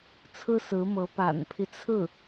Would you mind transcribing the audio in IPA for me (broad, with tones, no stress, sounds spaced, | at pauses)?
t͡sʰ ɹ̩˥ s ɹ̩˧˥ m ɤ˧˥ p a̰˨˩ n pʰ i˦ t͡sʰ ɹ̩˥˩